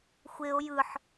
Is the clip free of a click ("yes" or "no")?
yes